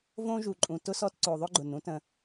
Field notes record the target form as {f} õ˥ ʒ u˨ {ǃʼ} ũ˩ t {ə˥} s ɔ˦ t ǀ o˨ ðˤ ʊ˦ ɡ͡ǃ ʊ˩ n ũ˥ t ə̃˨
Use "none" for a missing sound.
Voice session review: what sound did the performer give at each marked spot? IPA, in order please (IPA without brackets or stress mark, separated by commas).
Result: v, ǃʼ, ʊ˥